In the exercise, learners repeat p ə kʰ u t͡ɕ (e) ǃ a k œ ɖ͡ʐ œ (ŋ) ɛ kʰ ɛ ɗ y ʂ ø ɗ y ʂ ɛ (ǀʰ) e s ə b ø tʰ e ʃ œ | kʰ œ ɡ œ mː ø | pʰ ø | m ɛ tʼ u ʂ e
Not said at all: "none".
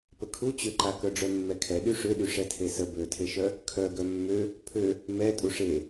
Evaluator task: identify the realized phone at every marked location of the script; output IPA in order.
ø, mː, tʰ

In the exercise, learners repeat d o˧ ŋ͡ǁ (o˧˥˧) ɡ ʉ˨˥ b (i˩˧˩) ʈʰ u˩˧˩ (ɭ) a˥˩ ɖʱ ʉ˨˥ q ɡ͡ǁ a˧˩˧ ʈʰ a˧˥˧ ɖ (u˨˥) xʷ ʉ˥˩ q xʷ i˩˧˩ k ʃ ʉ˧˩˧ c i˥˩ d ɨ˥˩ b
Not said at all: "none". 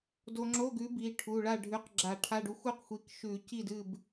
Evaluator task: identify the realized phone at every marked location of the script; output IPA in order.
o˧˥˧, i˩˧˩, ɭ, u˨˥

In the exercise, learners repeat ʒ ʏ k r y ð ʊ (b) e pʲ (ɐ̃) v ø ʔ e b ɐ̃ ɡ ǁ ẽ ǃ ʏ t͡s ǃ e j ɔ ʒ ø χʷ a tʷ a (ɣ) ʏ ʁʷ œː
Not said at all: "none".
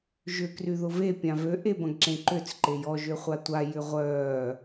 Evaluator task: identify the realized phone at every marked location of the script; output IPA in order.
v, ã, j

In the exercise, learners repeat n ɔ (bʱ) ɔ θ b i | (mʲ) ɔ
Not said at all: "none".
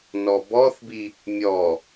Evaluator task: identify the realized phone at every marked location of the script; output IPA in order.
b, mʲ

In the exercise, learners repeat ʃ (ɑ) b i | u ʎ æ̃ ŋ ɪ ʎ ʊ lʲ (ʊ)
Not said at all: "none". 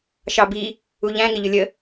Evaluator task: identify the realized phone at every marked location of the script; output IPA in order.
ɑ, ə

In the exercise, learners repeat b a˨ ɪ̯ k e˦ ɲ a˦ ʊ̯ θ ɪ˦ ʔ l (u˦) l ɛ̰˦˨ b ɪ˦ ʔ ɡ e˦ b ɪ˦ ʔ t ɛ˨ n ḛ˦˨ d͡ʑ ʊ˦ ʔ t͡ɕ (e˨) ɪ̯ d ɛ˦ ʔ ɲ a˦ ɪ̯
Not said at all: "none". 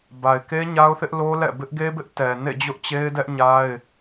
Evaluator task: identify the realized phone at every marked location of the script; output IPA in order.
o˦, e˦

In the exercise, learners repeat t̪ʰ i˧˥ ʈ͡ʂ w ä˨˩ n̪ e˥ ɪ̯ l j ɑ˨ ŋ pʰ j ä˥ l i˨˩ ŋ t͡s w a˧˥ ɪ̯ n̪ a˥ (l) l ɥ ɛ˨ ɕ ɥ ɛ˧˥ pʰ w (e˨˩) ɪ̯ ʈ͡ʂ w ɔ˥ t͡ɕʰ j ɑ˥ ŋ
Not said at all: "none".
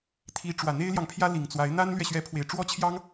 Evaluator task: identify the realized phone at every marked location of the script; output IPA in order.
n, e˨˩

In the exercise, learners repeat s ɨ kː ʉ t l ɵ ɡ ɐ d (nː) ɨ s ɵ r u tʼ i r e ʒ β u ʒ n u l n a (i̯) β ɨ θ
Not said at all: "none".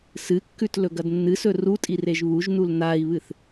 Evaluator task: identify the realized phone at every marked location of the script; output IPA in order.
nː, i̯

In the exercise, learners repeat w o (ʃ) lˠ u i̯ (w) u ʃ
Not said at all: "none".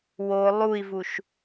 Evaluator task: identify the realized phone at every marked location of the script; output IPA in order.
none, v

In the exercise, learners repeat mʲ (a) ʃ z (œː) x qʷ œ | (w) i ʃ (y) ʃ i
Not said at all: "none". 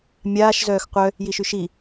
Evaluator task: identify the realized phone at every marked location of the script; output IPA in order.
aː, œː, j, y

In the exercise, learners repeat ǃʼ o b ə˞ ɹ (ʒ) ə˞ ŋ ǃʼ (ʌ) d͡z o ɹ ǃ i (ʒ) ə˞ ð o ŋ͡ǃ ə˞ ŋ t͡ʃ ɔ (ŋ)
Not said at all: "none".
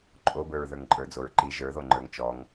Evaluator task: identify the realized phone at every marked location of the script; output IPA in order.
ð, ə˞, ʒ, ŋ

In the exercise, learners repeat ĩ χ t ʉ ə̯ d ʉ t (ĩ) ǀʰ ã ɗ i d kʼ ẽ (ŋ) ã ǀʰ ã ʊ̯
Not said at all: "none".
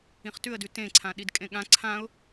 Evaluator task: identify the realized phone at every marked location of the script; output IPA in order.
ẽ, ɠ

